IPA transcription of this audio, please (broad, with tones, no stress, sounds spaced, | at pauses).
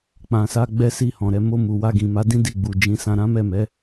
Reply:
k͡p ã˨ s a˧ ɡ͡b ɛ˦ s i˦˨ h ɔ̃˨ ɾ ɛ˨˦ m o˧ m u˨ w a˧ ɡ ĩ˨ m a˨˦ d ĩ˦ d i˦˨ ɡ͡b u˨ d͡ʒ ĩ˨˦ s ã˧ ɾ ã˦ m ɛ˦˨ m ɛ˨˦